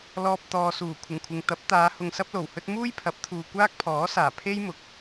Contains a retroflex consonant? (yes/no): no